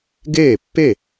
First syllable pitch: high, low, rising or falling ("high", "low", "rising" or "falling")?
falling